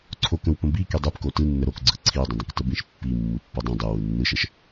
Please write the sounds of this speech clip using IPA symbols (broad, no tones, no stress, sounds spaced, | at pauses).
ǀʰ o k ə̃ w p ə̃ b i k i dˤ i p k o t ɯ nː ə ɾ o k ɡ͡ǀ ɯ ǀʰ i dˤ ə̃ dˤ ə̃ k t ə b ĩ ʃ pː i mː ɯ pː o dˤ ĩ dˤ ɯ w ɯ nː ɯ ʃ ə ʃ